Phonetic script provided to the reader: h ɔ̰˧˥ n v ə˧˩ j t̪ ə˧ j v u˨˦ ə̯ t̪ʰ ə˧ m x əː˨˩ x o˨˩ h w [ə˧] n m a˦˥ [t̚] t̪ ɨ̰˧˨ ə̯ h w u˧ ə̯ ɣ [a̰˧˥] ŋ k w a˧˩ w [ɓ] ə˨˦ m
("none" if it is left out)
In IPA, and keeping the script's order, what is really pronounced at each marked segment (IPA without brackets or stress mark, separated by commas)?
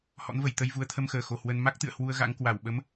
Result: ə˧, k̚, a̰˧˥, ɓ